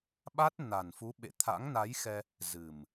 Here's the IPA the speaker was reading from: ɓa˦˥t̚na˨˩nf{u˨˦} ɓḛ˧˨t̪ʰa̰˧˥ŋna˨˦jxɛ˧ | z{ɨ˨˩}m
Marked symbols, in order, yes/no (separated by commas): yes, yes